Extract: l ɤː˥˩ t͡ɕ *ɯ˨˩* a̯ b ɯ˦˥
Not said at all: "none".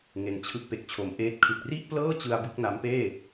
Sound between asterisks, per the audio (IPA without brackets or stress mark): ɯ˧